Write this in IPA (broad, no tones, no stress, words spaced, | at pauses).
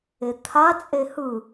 et̪ʰat͡sʼe hɯ